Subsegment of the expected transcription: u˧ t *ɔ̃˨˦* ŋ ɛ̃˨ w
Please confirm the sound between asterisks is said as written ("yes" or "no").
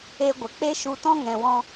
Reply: no